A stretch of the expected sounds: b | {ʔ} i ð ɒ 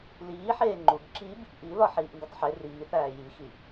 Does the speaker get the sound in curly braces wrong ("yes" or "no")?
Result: no